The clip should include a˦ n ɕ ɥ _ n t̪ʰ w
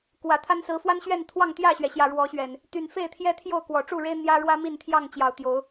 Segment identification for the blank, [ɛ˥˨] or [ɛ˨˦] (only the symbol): ɛ˥˨